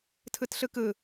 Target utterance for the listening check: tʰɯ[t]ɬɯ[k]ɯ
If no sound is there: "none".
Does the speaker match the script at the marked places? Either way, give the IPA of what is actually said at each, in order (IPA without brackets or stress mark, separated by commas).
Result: t, k